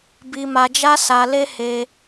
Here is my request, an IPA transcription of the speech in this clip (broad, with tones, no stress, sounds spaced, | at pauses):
b i˧ m a˧ d͡ʒ a˦ s a˧ l e˦ h e˧